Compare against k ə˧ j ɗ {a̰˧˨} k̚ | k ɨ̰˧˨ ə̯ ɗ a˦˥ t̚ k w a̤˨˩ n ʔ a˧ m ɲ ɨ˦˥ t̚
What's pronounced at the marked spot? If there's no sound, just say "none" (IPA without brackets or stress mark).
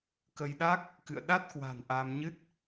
a˦˥